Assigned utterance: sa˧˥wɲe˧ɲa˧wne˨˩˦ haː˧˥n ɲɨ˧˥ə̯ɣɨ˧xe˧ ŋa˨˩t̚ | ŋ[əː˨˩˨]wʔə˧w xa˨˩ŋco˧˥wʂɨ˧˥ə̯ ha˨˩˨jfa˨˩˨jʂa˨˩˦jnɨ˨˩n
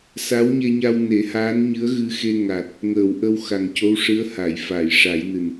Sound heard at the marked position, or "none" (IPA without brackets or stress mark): əː˨˩˨